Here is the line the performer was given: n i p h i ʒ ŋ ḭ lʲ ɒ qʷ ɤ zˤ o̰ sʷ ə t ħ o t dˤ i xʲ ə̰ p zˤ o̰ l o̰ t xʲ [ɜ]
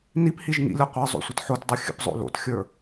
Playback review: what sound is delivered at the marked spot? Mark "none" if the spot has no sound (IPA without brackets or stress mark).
ə˞